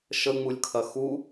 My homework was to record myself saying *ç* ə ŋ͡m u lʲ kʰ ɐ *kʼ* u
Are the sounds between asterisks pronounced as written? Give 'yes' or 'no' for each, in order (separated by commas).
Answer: no, no